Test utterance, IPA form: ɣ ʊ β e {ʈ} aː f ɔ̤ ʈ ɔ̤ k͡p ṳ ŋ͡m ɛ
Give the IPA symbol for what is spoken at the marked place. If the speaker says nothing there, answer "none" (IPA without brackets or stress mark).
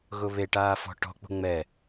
ʈ